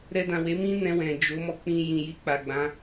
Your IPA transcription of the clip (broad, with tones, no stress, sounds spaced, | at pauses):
ɾ ɛ˧ d ã˨ w e˨˦ m ĩ˦ n ɛ̃˧ w ɛ̃˨ d͡ʒ o˨˦ m ɔ˧ k͡p ĩ˧ j ĩ˨ j i˧ k͡p a˨ ɡ͡b ã˨˦